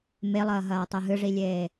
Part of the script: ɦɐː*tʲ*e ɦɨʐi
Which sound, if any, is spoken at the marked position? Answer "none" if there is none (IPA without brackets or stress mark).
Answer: tˤ